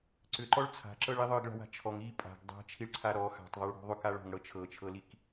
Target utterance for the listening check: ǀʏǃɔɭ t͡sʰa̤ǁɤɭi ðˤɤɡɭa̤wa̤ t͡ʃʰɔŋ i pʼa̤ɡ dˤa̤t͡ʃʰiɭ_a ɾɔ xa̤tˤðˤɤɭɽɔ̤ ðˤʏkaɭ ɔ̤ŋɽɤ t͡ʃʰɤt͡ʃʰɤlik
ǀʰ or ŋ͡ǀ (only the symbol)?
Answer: ǀʰ